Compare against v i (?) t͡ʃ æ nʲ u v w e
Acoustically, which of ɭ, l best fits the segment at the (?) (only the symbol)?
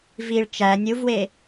ɭ